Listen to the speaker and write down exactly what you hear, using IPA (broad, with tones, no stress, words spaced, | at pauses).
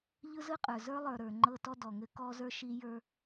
ʎɯ˦zɯ˦qʼə˞˨ zə˞˦ lˠə˞˨ɾə˞˨ ŋ͡ǃɤ˦tɔ˦ dɔ˨ŋɘ˦ kɔ˦zə˞˦ ʃi˦ jə˞˦